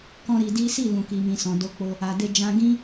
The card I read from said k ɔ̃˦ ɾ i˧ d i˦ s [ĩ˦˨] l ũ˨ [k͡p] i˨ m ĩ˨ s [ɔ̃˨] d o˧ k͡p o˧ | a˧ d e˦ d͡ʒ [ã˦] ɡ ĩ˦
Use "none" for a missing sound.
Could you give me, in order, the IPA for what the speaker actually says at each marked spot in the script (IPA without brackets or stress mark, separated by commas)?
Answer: i˦˨, k, ɔ̃˨, ã˦